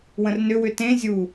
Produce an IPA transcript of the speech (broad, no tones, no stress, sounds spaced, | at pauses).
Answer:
w ə̃ r n ʏ w ʏ t ẽ zʲ u